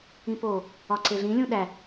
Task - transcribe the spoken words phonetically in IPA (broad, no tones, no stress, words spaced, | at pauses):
ĩpo | ɒǀeɮĩ lʲũɗæ